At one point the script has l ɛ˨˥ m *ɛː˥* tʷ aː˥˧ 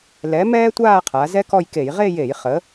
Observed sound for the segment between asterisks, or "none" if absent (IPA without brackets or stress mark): ɛː˥